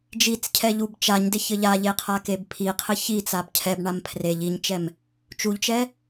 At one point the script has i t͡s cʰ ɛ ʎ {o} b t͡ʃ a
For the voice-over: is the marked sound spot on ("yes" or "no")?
no